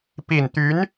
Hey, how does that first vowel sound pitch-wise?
low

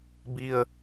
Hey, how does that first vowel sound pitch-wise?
low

